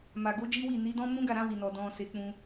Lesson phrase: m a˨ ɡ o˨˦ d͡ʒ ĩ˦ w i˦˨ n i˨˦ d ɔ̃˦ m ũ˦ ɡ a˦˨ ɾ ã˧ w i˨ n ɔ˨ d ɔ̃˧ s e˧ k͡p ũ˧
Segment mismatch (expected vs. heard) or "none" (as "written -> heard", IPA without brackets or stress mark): ĩ˦ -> i˦